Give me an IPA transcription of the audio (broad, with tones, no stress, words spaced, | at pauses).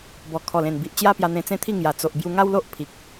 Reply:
bɔ˨˩ kʰɔ˨˩lẽ˨˩n bi˨ʔ t͡ɕja˦pja˧ n̪ẽ˧t͡sẽ˦t̪ʰi˥˧ ŋja˨˩t͡so˨ʔ bju˧ŋa˦wlo˦ʔ pʰi˨k̚